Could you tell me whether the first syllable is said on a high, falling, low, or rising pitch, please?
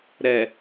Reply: low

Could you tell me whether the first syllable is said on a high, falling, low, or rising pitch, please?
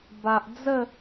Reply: low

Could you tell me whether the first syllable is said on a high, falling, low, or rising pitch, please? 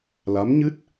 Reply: rising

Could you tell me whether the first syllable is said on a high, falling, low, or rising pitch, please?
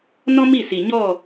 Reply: high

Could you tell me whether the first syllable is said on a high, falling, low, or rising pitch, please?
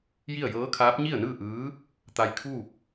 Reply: falling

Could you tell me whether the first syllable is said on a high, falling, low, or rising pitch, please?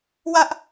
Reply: high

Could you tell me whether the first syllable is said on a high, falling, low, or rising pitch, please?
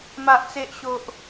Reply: low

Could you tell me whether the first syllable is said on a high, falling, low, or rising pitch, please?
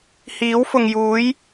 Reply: rising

